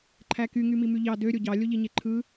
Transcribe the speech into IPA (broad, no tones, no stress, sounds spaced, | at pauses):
ǃʰ æ k y ŋ y m i m y ʎ ɑ d ø ɾʲ o ɟ ɑ lʲ o ʎ i ɲ e ǃʰ ɯ